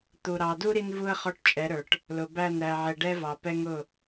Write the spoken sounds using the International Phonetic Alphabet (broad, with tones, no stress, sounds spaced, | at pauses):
t̪ u˨ ɾ ɑ˨ d u˦ ɾ i˦ n v u˦ ə̯ χ ɔ˦ ʈ t͡ʃʼ ɛ˨˦ ɾ ə˞˨ ʈ | l ʊ˨ b æ˦˨ n ɾ æ˨ ʕ ɛ˨ ɖ ɛ˦ v ɑ˨ p ɛ˦ ŋ ʊ˦˨